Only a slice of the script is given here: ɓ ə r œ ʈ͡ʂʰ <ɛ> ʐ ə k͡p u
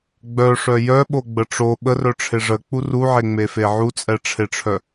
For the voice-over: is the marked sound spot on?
no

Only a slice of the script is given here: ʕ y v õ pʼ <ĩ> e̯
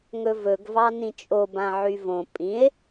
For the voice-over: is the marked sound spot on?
yes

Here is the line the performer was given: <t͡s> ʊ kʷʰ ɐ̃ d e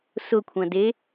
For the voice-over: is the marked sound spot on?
no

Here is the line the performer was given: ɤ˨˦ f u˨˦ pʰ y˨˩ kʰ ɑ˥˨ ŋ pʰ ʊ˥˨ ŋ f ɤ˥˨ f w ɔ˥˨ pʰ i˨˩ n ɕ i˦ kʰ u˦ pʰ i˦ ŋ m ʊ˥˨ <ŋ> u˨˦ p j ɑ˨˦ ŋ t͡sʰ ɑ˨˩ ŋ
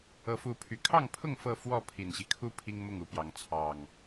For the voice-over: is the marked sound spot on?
yes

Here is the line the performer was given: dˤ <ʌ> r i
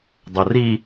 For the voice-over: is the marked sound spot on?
yes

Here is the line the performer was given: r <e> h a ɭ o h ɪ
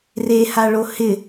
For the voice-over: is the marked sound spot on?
yes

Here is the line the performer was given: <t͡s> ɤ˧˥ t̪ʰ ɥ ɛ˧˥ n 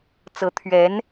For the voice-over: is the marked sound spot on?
yes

